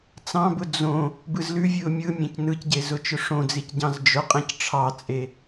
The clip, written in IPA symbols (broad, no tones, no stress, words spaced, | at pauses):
t͡sɑ̃bʊ d͡zõ | bɯzlʉvʲɯʊ̯ mʲɯmʲẽc nɯcɟe zʊt͡ʃʊʂõd͡zic ɟɑ̃zd͡ʒʊqʼẽc ʈ͡ʂʰɑt͡sʼe